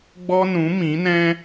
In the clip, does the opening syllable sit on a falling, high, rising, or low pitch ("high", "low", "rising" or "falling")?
high